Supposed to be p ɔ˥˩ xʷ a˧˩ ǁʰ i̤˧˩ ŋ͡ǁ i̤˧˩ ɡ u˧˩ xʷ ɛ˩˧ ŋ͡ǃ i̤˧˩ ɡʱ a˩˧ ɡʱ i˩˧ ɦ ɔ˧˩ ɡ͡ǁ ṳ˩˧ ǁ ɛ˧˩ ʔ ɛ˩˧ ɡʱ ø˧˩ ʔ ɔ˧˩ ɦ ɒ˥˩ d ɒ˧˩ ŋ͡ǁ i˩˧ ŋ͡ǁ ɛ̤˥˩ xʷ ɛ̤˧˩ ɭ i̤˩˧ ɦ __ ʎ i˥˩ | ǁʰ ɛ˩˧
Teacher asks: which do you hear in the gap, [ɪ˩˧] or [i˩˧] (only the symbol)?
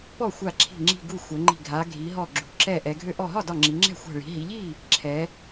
i˩˧